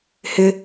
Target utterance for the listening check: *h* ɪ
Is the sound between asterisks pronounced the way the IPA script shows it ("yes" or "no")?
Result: yes